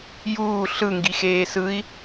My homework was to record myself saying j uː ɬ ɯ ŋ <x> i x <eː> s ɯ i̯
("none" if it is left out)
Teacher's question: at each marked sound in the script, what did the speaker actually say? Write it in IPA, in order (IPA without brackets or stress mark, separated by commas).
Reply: ɡ, eː